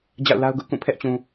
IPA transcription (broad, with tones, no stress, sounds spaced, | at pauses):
d͡ʑ a̰˦˨ ʊ̯ l a˦ ʊ̯ ɡ ʊ˦ ʔ k ũ˦˨ pʰ ɛ˦ ʔ t͡ɕ ũ˨